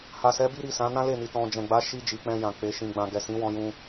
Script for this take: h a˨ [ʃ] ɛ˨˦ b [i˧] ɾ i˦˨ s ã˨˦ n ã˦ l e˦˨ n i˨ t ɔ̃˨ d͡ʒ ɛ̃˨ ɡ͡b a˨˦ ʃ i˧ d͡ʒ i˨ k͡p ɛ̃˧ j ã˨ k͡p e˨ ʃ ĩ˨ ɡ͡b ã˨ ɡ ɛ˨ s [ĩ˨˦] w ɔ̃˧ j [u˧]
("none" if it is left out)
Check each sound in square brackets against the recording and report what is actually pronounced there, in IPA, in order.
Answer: s, i˦, ĩ˨˦, ũ˧

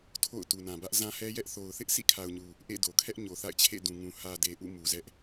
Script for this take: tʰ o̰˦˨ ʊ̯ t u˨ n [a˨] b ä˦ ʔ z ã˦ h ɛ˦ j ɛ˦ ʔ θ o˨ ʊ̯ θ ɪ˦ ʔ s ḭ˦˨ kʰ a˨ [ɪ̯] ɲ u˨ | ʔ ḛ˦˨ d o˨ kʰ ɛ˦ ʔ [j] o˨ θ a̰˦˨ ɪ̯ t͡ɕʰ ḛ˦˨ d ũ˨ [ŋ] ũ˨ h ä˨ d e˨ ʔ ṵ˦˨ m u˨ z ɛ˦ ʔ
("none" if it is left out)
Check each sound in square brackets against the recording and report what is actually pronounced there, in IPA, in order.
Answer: ã˨, ʊ̯, ɲ, ŋ

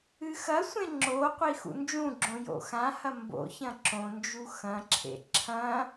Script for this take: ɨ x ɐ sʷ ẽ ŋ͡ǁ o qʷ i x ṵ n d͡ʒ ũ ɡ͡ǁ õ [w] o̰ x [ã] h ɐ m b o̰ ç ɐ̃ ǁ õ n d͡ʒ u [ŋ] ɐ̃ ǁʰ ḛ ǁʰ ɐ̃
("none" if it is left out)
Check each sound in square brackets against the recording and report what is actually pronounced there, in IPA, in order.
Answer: j, ã, x

